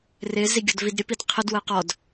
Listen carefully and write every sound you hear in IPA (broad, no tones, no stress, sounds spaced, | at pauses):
r ɪ z i ɡʲ ɔ d v i d ɾʲ ə p i d qʰ ə d w ə q ɔ d